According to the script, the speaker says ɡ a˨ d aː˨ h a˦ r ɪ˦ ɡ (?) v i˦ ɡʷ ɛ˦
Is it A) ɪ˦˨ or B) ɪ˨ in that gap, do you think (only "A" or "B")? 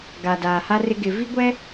B